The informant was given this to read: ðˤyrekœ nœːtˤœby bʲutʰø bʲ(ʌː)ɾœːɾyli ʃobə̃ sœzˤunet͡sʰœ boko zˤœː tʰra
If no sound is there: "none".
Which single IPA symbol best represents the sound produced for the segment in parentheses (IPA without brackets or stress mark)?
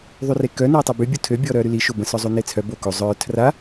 ɔː